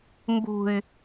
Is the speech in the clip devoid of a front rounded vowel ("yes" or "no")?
no